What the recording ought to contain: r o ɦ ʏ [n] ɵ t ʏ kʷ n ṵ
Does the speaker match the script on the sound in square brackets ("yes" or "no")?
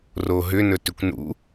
yes